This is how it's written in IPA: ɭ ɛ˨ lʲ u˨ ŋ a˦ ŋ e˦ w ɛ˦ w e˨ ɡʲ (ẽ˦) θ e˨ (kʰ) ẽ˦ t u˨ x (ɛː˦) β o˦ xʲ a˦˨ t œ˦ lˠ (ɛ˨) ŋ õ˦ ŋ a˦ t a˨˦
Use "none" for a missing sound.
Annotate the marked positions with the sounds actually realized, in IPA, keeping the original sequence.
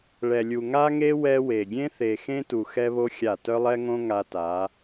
ẽ˦, x, ɛ˦, ɛ˦

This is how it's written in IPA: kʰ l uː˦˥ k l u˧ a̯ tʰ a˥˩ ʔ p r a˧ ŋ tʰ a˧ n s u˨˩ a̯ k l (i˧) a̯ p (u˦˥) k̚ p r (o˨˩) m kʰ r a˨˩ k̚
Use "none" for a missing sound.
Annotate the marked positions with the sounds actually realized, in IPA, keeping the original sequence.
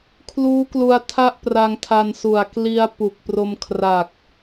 i˧, u˨˩, o˧

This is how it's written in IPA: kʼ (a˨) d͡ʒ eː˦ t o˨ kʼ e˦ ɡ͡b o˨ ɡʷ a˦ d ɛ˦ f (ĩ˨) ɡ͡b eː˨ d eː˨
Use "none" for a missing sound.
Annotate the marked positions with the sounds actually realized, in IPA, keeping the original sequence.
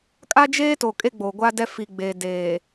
a˦, i˨

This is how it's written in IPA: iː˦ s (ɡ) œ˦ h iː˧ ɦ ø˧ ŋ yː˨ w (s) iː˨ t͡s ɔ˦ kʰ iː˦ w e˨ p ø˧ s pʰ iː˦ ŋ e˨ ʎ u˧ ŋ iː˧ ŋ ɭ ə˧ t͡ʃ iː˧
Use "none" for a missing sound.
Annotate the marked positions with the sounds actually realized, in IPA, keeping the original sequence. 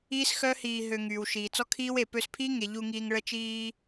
x, ʃ

